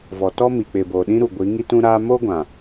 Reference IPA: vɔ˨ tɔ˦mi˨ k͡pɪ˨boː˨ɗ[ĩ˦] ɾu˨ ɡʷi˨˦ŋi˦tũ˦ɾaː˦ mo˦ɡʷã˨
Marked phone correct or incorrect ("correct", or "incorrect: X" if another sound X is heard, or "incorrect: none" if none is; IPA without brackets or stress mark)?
correct